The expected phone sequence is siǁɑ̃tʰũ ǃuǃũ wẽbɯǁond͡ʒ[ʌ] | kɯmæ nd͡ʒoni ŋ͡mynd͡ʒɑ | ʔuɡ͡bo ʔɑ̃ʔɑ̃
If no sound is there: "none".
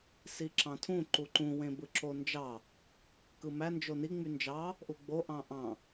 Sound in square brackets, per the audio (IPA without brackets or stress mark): ɑ